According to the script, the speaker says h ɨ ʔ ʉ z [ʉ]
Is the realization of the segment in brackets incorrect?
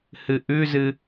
yes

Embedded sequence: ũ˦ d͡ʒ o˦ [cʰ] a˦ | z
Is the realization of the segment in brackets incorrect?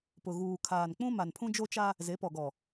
yes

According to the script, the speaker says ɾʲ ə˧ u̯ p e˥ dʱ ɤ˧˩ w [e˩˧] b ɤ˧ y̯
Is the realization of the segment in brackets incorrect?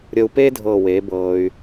no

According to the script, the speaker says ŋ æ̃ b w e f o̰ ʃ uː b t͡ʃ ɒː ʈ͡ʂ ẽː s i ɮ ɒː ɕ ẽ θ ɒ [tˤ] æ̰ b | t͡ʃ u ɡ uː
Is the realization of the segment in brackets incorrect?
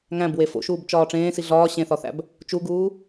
yes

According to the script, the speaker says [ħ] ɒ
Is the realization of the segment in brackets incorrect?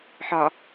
no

